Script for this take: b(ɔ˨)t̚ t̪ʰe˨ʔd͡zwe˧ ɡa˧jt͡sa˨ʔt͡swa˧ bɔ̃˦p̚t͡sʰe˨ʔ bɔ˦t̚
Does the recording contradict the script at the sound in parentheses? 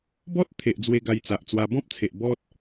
yes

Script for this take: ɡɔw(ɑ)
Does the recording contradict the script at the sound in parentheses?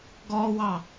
no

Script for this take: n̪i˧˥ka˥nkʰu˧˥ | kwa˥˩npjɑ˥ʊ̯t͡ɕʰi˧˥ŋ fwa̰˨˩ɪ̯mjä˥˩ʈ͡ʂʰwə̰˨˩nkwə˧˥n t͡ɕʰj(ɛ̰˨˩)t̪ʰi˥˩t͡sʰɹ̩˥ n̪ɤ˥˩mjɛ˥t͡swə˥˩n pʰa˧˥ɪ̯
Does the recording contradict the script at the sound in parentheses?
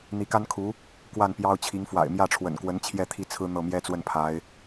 yes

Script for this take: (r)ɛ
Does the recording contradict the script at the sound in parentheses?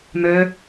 yes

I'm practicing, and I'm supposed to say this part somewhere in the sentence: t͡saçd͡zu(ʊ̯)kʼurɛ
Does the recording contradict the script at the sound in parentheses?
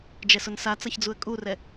yes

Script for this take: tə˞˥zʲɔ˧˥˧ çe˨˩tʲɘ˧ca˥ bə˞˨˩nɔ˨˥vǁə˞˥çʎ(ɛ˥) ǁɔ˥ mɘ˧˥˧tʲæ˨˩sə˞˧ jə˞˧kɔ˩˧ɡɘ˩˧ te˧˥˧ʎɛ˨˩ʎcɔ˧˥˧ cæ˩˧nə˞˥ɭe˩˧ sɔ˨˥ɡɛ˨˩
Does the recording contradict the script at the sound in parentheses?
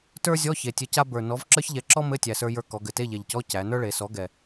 yes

